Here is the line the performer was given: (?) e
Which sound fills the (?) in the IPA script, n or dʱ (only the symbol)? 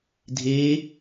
dʱ